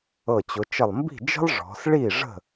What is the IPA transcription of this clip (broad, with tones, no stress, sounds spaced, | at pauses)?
ɤ˧˩ t͡ɕ ʊ˩˧ t͡ʃ ə˧˩ lˠ m b i̤˥˩ d͡ʒ ə̤˥ lˠ ʐ ɔ̤˩˧ s ɭ i˥˩ ʐ ə̤˥˩